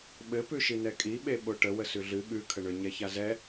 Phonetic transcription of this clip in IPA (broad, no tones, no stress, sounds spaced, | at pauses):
ɓ ɘ p ʉ ʃ i n ɛ kʼ i ɓ e ɓ o ʈ ə w ə s ʉ ɮ ɨ ɠ ʉ kʰ ə ɳ ʏ ɲ ɛ ç a z ɛ